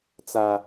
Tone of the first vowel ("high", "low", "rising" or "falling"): high